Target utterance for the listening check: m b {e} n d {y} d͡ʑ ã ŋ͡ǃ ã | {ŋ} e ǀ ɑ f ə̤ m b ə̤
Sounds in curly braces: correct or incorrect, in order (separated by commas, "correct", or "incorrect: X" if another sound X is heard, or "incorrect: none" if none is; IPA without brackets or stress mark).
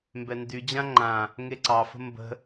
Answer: incorrect: ɛ, correct, correct